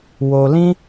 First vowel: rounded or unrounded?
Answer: rounded